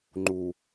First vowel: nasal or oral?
oral